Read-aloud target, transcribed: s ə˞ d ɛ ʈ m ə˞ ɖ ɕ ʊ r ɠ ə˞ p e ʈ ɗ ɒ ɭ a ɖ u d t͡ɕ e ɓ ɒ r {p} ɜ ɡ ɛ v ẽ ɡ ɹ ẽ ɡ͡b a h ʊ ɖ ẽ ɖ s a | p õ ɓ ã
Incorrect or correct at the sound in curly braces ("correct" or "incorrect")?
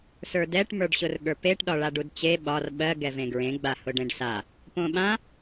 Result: incorrect